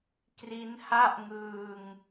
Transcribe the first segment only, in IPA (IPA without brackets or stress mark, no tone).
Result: k